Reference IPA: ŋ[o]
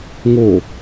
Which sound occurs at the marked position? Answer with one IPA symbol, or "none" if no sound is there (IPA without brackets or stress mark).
o